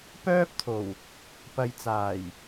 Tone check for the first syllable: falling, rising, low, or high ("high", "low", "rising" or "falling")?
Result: high